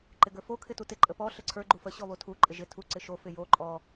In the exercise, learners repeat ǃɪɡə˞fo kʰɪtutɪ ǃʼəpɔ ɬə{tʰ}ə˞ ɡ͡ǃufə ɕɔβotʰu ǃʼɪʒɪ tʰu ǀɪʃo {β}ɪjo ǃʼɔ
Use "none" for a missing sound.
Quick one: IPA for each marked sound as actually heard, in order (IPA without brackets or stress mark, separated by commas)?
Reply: ǀʰ, f